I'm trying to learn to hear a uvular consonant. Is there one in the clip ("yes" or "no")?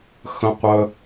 yes